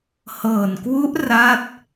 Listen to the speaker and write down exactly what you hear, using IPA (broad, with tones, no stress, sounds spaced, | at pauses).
h ɤː˨˩ n k w u˦˥ ʔ r a˦˥ t̚